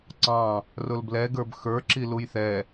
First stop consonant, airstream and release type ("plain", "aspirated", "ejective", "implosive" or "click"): click